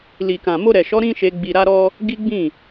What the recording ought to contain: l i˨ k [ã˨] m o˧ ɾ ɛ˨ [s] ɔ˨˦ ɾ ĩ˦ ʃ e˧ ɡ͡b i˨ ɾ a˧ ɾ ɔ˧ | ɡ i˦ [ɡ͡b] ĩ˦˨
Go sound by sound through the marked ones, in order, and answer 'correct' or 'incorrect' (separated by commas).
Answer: correct, incorrect, correct